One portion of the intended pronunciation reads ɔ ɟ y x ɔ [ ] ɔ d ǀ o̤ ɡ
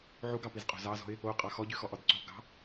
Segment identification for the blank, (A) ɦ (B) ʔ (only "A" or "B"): B